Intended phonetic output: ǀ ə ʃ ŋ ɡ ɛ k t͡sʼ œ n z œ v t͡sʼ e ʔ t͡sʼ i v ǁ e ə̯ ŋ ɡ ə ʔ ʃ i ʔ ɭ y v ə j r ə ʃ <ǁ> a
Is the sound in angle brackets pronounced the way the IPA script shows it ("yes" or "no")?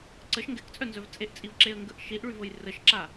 yes